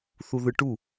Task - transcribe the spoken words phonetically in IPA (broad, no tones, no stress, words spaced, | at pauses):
θuðɯʈu